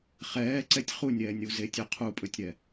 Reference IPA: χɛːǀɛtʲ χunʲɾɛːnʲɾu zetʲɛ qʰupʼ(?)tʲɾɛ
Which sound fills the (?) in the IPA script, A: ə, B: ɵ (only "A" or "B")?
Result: B